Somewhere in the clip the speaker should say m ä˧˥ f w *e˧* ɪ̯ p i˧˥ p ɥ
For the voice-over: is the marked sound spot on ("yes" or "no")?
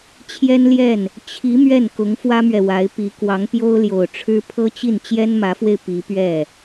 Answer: yes